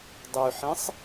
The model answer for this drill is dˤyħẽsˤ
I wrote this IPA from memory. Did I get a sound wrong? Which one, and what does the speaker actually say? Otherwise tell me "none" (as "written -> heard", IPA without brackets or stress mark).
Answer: none